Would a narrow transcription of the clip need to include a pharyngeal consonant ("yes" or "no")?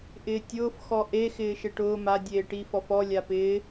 no